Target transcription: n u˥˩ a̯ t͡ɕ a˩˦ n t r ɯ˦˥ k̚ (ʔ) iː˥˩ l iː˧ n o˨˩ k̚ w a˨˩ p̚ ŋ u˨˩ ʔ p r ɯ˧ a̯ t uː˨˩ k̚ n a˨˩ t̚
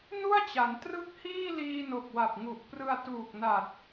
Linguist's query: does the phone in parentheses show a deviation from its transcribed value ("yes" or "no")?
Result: yes